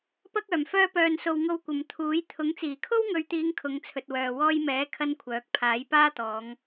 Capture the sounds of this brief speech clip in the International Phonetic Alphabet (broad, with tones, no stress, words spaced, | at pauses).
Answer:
pɐ˥k̚œː˨˩m fœː˧pœː˨nso˨w ŋo˧wkʷɐ˨m t̪ʰuː˨˥jt̪ʰʊ˨˥ŋ t͡siː˨˩kʰo˥wŋɵ˨˧ɥt̪iː˨˧ŋ kʰʊ˨˧ŋt͡sʰɵ˨t̚wœː˨ wɔː˧jmɛː˨˥ kʰɐ˥nkʷʰœː˨˥k̚ pʰaː˨˥jpaː˥t̪ɔː˨˧ŋ